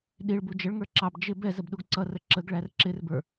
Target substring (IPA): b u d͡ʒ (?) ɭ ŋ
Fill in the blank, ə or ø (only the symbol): ə